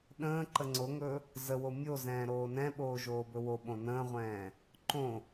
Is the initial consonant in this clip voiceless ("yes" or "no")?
no